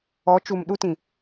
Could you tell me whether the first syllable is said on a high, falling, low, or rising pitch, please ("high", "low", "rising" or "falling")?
rising